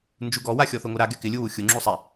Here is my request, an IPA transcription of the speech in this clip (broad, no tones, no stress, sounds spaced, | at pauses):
n d͡ʒ u ɡ ɔ w a xʲ ɔ θ o ŋ o ɾ a ɡ ɛ k ɪ lʲ u w u xʲ ʊ ŋ͡ǁ u sˤ ɛ